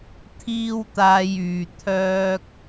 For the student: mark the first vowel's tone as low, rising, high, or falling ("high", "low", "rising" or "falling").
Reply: high